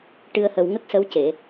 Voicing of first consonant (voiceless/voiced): voiceless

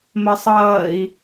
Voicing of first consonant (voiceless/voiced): voiced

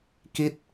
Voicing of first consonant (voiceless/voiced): voiceless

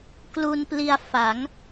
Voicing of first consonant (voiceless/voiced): voiceless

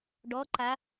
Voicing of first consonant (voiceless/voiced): voiced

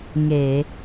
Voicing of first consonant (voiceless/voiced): voiced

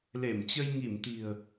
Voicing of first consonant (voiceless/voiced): voiced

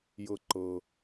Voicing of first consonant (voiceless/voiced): voiced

